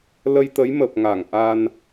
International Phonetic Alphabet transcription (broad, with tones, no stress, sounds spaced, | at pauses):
l ə˧ j t̪ ə˨˦ j m ə˨˩ p̚ ŋ a˧˩ ŋ ʔ a˧ n